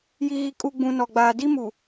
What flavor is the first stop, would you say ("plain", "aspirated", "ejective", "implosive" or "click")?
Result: ejective